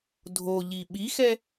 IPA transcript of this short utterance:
dʱoʎi ɓixɛ

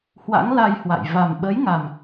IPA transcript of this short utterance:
hwa̰˧˥ŋla˧j hwa̰˧˨j va˨˩mɓə˨˦jŋa˨˩m

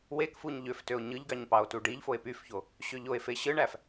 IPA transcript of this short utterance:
wekfuɲ ʎøftøo̯ ɲɯʎɡɑɲ pɑo̯tuɖiʎfoe̯ pyfço | ɕøʎoe̯fe ɕɯɳæf

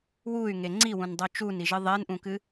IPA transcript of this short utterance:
wuy̯ŋe ŋ͡ǀiwũndˤo t͡ʃuniʒɨ ðˤenʔũkɨ

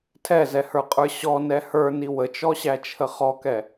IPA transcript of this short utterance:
tʰɛzɛhə˞qʼə˞ ɕɔnɛ hə˞ni wət͡ʃɔɕæt͡ʃʰə χɔkɛ

